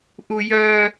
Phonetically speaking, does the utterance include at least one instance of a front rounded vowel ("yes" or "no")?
yes